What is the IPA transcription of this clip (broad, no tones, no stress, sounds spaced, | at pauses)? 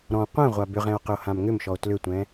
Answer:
ɾ ɔ̃ qʷ ɛ̃ ʁʷ a b ʏ ʁ ɛ̃ o̯ q ʏ o̯ h ã m ŋ ʏ m ʃ ɔ o̯ t l ʏ tʷ ɛ̃